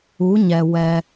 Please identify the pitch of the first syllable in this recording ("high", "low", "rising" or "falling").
rising